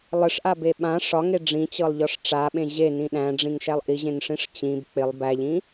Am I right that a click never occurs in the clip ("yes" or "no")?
yes